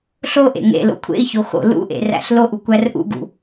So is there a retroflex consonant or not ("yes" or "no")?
no